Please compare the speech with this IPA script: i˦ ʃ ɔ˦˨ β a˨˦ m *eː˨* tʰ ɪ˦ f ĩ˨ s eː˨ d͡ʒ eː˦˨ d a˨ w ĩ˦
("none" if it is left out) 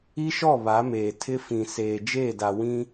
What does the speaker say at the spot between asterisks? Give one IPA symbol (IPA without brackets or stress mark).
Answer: eː˨